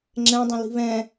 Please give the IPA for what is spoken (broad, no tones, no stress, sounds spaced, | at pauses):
ŋ͡ǁ ɛ̃ dˤ ə̃ l i̤ β ɛ̃